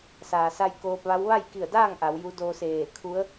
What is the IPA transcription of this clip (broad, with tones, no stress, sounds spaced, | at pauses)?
s aː˩ s a˧ j k oː˧ p̚ ʋ a˧˥ w ʋ a˥˨ j k i˧˩ ə̯ d aː˥˨ ŋ ʔ a˩˧ w j u˧˥ d o˧ s eː˧˩ kʰ u˧˥ ə̯